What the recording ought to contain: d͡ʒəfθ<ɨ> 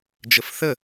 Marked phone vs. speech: incorrect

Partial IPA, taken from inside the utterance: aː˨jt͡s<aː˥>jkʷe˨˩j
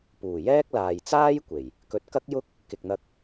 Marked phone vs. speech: correct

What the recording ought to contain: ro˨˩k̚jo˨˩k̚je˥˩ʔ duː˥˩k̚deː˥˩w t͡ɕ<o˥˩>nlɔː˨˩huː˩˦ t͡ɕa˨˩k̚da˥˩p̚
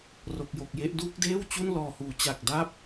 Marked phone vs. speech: incorrect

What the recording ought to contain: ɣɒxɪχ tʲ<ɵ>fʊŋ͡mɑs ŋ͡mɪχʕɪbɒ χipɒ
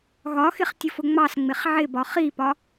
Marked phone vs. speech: incorrect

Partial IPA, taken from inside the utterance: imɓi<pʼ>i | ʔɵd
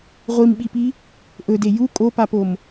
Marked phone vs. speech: incorrect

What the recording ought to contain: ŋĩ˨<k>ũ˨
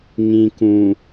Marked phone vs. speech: correct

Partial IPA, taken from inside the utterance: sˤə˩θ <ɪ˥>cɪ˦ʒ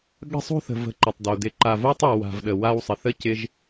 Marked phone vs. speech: incorrect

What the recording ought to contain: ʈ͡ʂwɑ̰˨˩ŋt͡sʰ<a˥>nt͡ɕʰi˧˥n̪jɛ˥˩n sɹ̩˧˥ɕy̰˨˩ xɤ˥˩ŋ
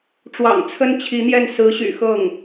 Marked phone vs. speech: incorrect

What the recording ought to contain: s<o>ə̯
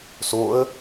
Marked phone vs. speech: correct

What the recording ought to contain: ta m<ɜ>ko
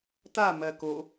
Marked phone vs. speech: correct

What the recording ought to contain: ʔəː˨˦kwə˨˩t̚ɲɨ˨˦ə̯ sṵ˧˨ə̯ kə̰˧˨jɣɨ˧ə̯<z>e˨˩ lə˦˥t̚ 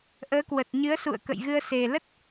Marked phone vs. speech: incorrect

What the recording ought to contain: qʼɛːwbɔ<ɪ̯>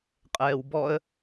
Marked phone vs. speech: incorrect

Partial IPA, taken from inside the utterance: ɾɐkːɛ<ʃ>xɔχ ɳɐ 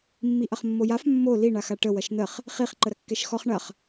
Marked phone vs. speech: correct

